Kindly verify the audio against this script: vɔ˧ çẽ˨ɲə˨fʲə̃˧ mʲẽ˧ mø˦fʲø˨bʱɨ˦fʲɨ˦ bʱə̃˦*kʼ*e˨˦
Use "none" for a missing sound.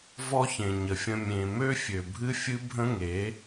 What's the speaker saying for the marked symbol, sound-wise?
ŋ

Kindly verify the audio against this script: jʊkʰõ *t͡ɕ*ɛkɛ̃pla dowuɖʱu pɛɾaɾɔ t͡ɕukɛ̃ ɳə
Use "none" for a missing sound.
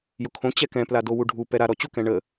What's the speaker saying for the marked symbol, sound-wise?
t͡ɕ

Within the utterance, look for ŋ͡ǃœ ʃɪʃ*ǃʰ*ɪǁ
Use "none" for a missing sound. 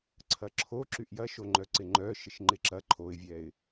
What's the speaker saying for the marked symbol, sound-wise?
ŋ͡ǃ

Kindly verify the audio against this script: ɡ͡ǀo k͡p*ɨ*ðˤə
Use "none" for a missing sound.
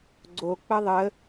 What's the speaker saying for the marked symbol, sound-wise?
ə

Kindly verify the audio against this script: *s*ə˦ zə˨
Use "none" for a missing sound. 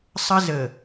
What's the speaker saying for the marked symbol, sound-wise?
sˤ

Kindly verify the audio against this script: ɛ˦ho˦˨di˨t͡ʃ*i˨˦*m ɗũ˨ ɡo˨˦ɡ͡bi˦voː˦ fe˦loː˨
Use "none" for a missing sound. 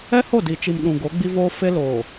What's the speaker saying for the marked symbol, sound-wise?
i˨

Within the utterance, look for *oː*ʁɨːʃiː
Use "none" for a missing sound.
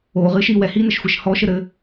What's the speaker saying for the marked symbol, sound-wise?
oː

